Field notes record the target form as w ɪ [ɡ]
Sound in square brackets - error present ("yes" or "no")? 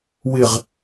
yes